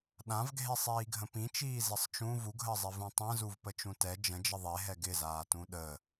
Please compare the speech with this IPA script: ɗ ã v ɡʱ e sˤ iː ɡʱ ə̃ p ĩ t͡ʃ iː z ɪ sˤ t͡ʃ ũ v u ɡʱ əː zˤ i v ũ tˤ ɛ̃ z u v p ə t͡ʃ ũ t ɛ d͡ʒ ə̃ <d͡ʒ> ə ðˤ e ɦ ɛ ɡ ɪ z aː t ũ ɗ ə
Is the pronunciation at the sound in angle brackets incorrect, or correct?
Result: correct